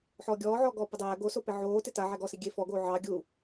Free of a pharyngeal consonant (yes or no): no